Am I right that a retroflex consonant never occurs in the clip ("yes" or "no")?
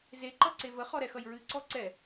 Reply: yes